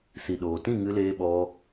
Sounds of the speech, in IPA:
si˨ɗoː˨tĩ˦˨ ŋɨ˧leː˧ɓɔ˧

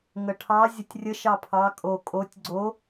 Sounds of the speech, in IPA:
ŋəʈʰɑ zʲətʲrʲə ʃɑpʰɑ kʼo kʼotʲ ɡ͡ǀo

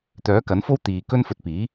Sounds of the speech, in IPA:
t̪œː˨˥kɐ˨˥nfo˥w t̪iː˨ kɵ˥nfɵ˧t̚ piː˨˥

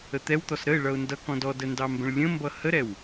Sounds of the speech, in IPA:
ət̪ɛwt̪ɔs ɾəɪ̯ɭʌʊ̯ ndʌkɔ̃d ɔdə ndɑmbə̃ɭlʲə̃mbʌ həɾɛw

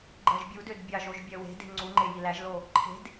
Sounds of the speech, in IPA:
ɡ͡ǃɜʒbʲudød bʲɑʒoʒ bʲɜwe̤de̤ ŋ͡ǀuŋ͡ǃe jilæʒlo | ǃʰe̤d

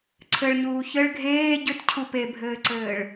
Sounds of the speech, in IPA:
ǀʰɘɭɲuː çɘɭ ɡʱeː ɟʏtcʰu pebʱɘːǀɘːɭ

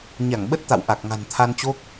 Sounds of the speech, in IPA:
ɲa˧˩ŋɓə˦˥t̚t̪a̰˧˨w ʔa˨˩k̚ŋa̤˨˩nt̪ʰa˧nt͡ɕo˦˥k̚

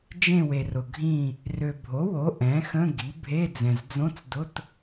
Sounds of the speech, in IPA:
d͡ʒẽ˦˨we˨rʊ˨ ɡʱĩ˦˨ | rø˨bʱo˩˥wo˩˥ ʔɛ̃˩˥ xə̃˧˥˧ɡi˩˥ bʱe˧˥˧d͡zɛ̃˨z d͡zõ˧˥˧t͡sdʊ˧˥˧t

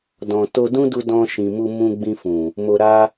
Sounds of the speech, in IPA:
dɔ̃˨ to˧ dũ˦du˧ dɔ̃˧ʃĩ˨mu˧ mũ˧ɡ͡bĩ˧fũ˨ | mo˧ɾa˦

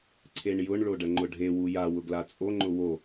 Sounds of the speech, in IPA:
ǀʰeɳjʊɳ ɭoɖəŋ͡ǃʊɖʱe wuja wʊɡlat͡sʼo ŋ͡ǃʊwo

